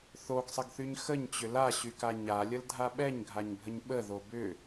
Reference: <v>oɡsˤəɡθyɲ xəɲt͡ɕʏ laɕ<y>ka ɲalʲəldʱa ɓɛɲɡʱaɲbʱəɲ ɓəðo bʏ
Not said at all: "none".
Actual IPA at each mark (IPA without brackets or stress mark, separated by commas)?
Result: θ, y